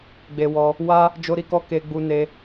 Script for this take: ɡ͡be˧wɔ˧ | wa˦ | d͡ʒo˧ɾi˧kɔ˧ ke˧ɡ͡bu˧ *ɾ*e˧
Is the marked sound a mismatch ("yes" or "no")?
yes